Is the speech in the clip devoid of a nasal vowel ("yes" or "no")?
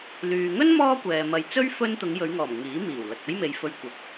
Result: yes